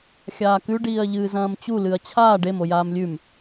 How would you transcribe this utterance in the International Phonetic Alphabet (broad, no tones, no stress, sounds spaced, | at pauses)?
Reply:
xʲ aː k ʉ ɖ iː ɐ̯ ʎ ɨː z ɐ̃ː m t͡ɕ u l ɨ ɐ̯ t͡ɕʰ aː ɖ e m o j aː m lʲ ʉ m